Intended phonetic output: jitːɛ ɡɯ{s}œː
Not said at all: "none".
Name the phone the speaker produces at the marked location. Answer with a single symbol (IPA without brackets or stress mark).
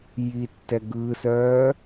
s